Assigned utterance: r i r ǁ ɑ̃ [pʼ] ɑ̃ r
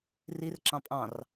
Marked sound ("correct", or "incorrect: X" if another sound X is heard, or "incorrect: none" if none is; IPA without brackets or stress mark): correct